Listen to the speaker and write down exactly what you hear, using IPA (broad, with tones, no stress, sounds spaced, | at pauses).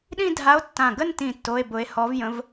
ɗ ĩ˥˧ dʱ a˧˥ o̯ tː ã˧˩ ɡ ə˥˧ n t ĩ˧˩ tː o˧˥˧ e̯ b ʊ˧˥ e̯ h ɔ˧˥ v j ə̃˧˥ v